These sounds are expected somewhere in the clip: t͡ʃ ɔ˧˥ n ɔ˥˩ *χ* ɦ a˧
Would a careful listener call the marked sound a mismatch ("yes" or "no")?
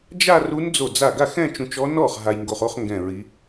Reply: no